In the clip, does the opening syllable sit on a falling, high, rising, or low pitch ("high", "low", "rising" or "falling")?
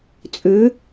rising